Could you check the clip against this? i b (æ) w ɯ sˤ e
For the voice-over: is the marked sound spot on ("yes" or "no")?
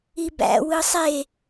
no